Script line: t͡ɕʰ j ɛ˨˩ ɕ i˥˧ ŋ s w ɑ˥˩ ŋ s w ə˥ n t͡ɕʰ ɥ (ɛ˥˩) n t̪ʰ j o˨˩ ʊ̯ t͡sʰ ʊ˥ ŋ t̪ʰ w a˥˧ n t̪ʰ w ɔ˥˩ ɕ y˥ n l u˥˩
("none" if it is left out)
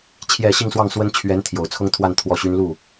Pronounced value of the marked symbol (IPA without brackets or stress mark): ɛ˧˥